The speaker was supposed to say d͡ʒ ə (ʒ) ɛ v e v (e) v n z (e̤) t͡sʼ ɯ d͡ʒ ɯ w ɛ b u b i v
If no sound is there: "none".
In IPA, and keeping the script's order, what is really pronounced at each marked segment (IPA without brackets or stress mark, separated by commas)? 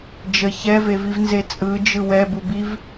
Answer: ç, i, e